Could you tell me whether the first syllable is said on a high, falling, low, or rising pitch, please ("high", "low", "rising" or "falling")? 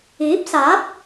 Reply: rising